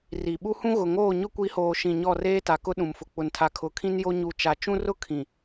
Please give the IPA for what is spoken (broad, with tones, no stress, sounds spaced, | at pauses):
r i˨ ɓ u˦ h ũ˦ ɣ ʊ˨ ŋ oː˦˨ ɲ ʊ˦ kʷ i˨˦ h oː˨ ʃ ĩ˨ ɲ ɔ˦˨ r eː˦ t a˨ k ʊ˦ ɗ ũ˨ m f ʊ˨ k͡p ʊ˨ n tʰ a˨ kʰ ʊ˨ kʰ ĩ˦ n j o˦ ɲ u˨ t͡ʃ a˨ t͡ʃ ũ˦ r ʊ˦ kʰ ĩ˨